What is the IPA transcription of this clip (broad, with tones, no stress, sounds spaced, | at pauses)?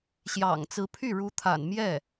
ɕ j ɑ̰˨˩ ŋ t͡s ɹ̩˧˥ pʰ y˥˩ ɻ u˧˥ t̪ʰ a̰˨˩ n m j ɛ˥˩